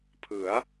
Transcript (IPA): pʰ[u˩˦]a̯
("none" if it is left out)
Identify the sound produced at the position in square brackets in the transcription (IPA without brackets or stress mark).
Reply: ɯ˩˦